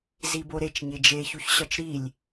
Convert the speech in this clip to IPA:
z i b o ɾ e t͡ʃ ɲ e d͡ʒ e ç u ç ɕ ɒ t͡ʃ ɾ i lʲ

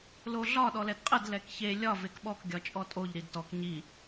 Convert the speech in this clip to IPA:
l o ɮ ɒ ɗ ɔ l ɛ d qʼ ə d l ɛ k ç e lʲ ɒ v e k ɓ ɔ k ɡʲ ɒ t͡ʃʼ ɔ tʼ o ʎ ɾ i d t ɔ k ɲ i

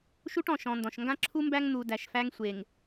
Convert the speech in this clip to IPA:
ʃ u˦ ʈ ɔ̃˨ ʃ ɔ̃˨ n d ɔ̃˨ ʃ ŋ ɡ ã˦ ǁʰ u˦ m b æ˦ ŋ n̪ u˨ d æ˨ ʃ f æ˦ ŋ sʷ e˨ ŋ

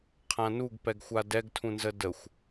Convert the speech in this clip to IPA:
qʰ ã n u ɡ p ɛ ɡ xʷ a d ɛ ɡ tʰ ũ n z ə d ə xʷ

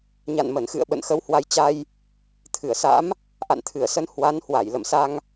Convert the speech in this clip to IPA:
ɲ a̰˧˨ n m ə˧˩ n x ɨ̰˧˨ ə̯ ɓ ə̰˧˨ n x ə˨˦ w h w a˨˦ j t͡ɕ a˧ j | t̪ʰ ɨ˧˩ ə̯ s a̰˧˥ m | ʔ a̰˧˨ n t̪ʰ ɨ˧˩ ə̯ s ə˧ n h w a˨˦ n h w a˧˩ j l ə̰˧˨ m s a˧ ŋ

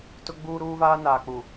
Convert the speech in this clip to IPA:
t ʊ˦ ɡ͡b uː˦ ɾ uː˦ v aː˦ n aː˨ k͡p u˨

